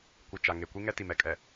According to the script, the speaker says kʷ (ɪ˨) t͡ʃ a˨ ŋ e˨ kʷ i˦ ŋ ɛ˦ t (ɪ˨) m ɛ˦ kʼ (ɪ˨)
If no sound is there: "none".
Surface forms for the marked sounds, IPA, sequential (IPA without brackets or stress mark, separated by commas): ɪ˨, i˨, ɛ˨